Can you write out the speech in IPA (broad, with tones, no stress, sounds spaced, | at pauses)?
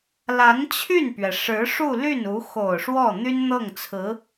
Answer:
l a˧˥ n t͡ɕʰ y˥˩ n p ɥ ɛ˩ ʂ ɻ̩˧˥ ʂ u˥˧ l y˥˩ n u˧˥ x o˨˩ ʊ̯ ʂ w ɔ˥˩ n̪ y˥ n n̪ ɤ˥˩ ŋ t͡sʰ ɹ̩˧˥